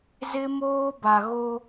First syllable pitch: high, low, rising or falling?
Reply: high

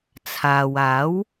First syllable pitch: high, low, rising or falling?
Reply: low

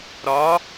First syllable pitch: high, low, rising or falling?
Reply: rising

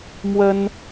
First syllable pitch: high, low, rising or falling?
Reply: high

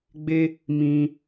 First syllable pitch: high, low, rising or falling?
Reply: high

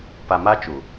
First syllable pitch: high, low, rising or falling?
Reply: low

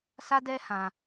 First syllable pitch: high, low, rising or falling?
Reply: high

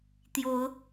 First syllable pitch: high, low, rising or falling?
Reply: rising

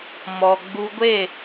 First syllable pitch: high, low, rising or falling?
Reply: low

